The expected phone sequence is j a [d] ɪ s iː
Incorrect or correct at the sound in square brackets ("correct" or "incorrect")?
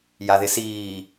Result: incorrect